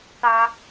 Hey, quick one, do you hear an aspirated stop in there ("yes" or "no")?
no